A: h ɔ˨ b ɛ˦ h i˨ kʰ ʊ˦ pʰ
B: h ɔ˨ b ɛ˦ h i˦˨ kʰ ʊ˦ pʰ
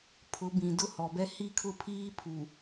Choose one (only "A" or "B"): B